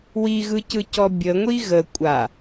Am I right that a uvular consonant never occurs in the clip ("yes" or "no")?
yes